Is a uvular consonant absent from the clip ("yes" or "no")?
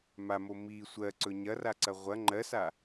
no